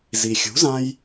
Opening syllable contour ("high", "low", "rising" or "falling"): low